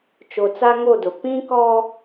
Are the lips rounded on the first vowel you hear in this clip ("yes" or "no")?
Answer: yes